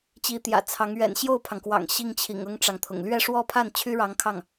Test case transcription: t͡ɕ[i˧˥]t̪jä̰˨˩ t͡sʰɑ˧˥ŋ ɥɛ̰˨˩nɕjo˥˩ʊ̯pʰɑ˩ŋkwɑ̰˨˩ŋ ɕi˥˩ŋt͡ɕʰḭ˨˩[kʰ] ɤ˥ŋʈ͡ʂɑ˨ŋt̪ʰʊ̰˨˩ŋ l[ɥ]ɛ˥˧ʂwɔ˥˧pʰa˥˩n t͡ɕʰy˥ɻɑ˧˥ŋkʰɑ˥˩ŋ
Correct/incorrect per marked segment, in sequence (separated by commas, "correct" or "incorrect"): correct, incorrect, correct